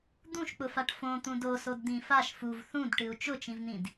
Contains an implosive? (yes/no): no